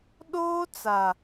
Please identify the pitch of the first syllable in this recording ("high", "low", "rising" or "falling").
high